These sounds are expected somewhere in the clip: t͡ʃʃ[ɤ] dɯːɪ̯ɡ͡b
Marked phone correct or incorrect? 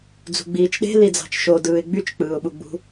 incorrect